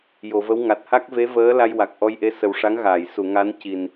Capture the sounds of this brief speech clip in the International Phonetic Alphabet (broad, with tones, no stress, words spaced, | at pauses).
jo˨˩˨və˧˥wŋa˨˩t̚ ha˦˥k̚ve˧˥vəː˧˥ la˧jwa˨˩k̚ʔɔ˧jʔe˧˥ sə˨˩wʂa˧˥ŋɣaː˨˩˨j su˨˩˨ ŋa˧˥nci˨˩n